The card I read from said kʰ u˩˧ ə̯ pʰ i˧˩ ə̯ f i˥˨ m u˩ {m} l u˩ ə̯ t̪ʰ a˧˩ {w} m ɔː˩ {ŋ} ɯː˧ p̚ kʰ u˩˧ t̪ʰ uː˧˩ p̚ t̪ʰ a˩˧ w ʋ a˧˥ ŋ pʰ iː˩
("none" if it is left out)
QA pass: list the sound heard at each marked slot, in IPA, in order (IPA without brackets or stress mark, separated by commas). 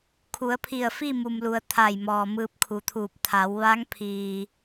m, j, m